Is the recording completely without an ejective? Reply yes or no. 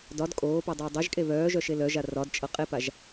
no